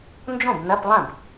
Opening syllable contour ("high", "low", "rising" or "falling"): falling